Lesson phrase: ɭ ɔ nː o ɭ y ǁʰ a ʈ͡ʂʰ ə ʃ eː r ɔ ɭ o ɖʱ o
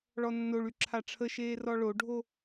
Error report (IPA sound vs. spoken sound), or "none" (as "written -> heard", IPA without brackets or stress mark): none